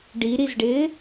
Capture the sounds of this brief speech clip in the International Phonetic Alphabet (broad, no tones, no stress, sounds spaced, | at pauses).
ɖ i ɾ i z ɖ ɪː